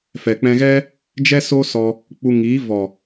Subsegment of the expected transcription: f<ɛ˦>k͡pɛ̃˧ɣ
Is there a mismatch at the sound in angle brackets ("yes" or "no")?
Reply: yes